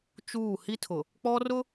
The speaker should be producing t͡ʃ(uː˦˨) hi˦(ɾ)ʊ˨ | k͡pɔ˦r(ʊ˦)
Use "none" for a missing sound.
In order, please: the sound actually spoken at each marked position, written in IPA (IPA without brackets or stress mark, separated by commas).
uː˦˨, tʰ, ʊ˦